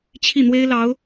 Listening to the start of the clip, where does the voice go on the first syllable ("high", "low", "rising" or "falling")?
falling